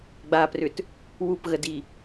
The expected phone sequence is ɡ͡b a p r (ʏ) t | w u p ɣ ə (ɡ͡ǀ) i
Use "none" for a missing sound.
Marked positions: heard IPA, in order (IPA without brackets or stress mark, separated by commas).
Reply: ʏ, d